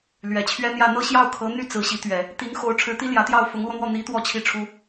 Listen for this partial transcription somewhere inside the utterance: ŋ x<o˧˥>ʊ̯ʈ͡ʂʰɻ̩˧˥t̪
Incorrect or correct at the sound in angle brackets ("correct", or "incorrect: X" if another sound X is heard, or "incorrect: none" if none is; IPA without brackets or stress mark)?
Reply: correct